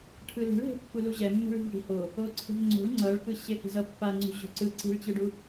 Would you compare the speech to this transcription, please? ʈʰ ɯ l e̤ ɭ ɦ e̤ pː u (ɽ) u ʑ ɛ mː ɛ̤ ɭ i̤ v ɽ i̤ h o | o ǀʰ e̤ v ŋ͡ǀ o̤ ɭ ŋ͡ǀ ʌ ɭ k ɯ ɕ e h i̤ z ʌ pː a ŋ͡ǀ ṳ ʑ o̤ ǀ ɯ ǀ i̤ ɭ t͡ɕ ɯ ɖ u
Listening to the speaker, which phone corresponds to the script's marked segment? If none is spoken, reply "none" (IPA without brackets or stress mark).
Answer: l